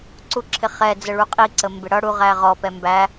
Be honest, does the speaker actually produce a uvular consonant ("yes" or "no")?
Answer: yes